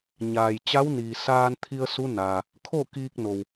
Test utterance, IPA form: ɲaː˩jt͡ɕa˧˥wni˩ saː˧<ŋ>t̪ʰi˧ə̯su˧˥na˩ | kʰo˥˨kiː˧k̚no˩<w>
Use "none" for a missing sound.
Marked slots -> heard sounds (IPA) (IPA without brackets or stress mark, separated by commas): n, w